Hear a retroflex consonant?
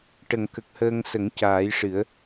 yes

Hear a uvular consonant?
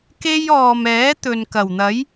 no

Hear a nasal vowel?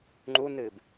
no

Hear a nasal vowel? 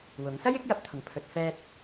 no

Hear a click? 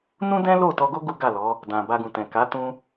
no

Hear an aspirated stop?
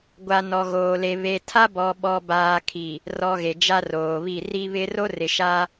yes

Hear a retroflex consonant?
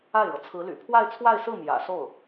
yes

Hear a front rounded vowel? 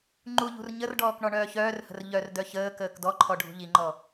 yes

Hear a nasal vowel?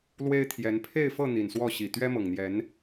no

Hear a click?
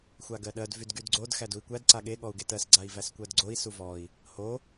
yes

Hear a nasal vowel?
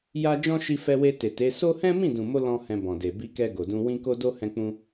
yes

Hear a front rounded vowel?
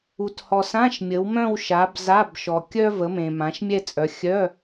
yes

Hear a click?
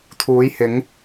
no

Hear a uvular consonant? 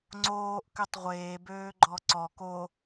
yes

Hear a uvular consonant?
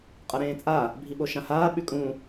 yes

